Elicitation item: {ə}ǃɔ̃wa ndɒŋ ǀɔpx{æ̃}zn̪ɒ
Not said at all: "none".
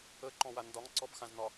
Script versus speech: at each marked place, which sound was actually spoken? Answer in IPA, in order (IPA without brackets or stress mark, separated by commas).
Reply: ə, ã